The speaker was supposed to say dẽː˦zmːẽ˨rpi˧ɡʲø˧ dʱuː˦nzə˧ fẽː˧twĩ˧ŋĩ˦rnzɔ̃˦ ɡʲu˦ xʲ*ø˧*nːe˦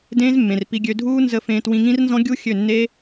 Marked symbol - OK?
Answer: no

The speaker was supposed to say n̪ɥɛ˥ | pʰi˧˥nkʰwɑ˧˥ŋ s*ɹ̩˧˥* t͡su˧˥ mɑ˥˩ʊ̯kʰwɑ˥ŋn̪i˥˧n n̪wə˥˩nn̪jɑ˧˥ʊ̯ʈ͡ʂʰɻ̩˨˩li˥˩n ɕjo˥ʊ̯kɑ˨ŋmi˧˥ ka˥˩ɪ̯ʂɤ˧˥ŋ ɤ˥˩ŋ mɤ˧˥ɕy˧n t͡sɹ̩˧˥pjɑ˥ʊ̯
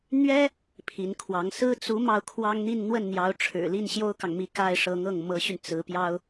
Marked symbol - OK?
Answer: no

